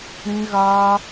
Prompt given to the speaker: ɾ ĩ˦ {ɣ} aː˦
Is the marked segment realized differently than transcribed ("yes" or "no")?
no